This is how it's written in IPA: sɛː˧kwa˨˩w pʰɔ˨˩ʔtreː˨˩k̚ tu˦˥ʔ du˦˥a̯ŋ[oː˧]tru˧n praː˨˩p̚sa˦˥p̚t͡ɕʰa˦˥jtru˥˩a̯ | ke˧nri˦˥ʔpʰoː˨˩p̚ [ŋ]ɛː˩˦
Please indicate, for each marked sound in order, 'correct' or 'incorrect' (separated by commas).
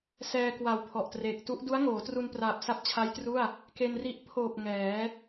incorrect, correct